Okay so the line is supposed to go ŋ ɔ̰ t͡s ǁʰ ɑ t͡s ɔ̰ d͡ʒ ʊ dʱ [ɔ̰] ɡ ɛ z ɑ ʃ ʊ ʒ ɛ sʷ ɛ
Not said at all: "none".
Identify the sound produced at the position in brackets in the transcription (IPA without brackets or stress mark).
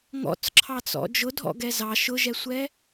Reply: ɔ̰